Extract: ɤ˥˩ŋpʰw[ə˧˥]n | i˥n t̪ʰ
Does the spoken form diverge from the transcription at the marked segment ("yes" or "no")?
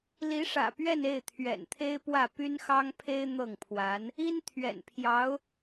yes